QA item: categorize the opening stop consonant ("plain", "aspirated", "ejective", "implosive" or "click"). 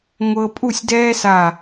ejective